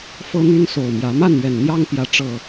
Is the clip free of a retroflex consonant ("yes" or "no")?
no